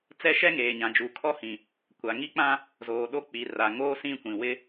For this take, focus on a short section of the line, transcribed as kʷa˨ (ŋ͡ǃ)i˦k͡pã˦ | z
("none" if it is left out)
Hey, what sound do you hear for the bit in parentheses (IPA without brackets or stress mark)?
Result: ŋ